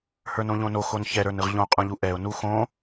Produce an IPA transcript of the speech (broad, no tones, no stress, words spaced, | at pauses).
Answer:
hə˞nõʎõno xonçɛ ɾə˞nɯʁʎõ qʼũʎuʔɛʊ̯ nuxõ